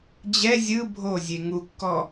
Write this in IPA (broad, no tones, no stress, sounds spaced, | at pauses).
d͡ʑ ɛ zʲ ɯ bʱ o zʲ e ŋ u kː ɔ